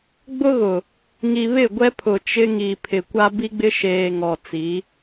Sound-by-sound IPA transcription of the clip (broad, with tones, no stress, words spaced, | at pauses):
ɡ͡bʊ˦ɣʊ˨ | ŋi˨βɪ˦˨ɡʷɛ˦pʰʊ˨ t͡ʃɪ˦ŋi˨pʰɪ˨ kʷa˦bi˦ɡ͡bɪ˦ ʃeː˨ ŋɔ˨ t͡si˨˦